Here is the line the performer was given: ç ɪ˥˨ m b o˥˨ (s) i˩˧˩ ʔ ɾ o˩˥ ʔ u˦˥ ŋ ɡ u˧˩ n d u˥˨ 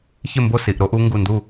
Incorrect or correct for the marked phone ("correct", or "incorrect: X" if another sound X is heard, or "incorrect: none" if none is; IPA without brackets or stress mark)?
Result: correct